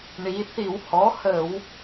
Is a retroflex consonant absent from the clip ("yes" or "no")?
no